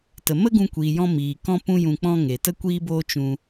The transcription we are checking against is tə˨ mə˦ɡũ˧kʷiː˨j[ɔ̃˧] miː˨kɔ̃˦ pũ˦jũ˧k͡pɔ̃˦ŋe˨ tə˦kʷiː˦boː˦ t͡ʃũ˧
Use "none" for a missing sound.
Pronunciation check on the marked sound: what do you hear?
ɔ̃˧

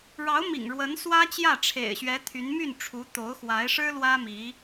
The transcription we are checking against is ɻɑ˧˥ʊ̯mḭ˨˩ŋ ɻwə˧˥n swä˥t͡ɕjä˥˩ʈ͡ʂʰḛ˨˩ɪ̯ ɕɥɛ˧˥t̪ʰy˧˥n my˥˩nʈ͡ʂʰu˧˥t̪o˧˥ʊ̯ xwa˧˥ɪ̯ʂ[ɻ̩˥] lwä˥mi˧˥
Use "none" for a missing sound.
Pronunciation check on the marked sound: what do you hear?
ɻ̩˥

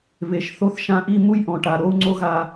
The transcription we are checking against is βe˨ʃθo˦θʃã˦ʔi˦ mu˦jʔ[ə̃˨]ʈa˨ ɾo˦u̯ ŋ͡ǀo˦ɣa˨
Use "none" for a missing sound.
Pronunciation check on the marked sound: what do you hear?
ɔ̃˨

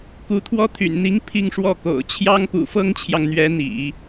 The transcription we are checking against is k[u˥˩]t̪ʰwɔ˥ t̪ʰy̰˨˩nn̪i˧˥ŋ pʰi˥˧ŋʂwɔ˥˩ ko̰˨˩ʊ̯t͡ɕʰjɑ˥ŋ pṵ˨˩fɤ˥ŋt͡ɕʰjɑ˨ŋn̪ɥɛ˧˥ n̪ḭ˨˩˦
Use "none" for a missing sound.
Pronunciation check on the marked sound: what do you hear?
u˧˥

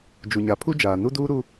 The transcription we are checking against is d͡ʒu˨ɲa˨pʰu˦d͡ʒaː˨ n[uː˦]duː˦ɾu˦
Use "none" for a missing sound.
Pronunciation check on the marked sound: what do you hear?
u˦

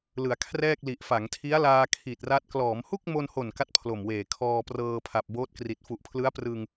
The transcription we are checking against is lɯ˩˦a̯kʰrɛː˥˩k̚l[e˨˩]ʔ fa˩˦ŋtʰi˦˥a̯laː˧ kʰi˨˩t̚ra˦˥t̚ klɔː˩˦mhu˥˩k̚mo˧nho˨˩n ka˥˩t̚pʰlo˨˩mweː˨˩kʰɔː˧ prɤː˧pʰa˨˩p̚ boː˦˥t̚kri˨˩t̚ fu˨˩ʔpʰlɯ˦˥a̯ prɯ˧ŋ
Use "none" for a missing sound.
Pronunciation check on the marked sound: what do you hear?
i˨˩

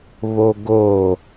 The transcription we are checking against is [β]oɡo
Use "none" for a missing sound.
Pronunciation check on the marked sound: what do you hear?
β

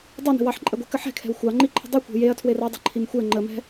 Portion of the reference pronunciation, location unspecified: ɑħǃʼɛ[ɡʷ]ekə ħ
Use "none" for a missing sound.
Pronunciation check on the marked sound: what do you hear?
ɡʷ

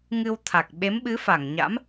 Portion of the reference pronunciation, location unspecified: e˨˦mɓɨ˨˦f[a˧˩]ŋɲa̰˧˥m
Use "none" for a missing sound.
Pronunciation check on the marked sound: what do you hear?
a˧˩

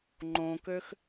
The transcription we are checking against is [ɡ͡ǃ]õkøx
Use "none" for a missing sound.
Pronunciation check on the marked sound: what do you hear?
ŋ͡ǃ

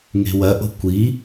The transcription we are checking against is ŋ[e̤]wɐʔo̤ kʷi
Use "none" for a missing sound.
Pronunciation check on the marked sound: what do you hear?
e̤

